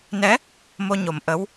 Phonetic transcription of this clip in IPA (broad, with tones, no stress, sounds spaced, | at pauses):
n ɛ˧˥ | m o˧ ɲ o˨˩ m ʔ ə˧˥ w